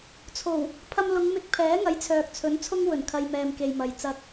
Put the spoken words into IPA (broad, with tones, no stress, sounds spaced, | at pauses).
t͡sʰ o˨˩ w | pʰ ɐ˧ m l ʊ˨˧ ŋ m ɪ˧ k̚ pʰ ɛː˨˥ ŋ ɐ˨˥ j t͡sʰ œː˨ k̚ t͡sʰ ɵ˨˥ n t͡sʰ ʊ˥ ŋ w ɵ˨˩ n kʰ ɐ˧ j m ɛː˨ m k e˨ j m ɐ˨ j t͡s ɐ˧ k̚